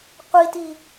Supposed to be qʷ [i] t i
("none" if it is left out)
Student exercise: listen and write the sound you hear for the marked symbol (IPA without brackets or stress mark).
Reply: i